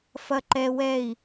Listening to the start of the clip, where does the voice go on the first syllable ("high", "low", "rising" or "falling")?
high